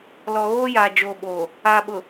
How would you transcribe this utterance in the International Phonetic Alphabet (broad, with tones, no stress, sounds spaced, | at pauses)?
l ɔ˨ ɣ oː˦ j aː˨ d͡ʒ oː˨ ɓ oː˨ | a˨ ɓ ʊ˨